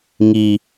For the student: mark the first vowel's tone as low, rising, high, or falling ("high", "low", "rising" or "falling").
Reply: low